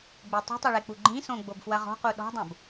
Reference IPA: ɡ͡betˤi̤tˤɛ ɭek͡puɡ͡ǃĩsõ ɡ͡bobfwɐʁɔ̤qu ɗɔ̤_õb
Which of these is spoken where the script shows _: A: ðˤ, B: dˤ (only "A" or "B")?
B